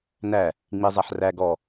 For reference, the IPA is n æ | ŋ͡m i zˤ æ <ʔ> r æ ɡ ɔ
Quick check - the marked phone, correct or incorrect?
incorrect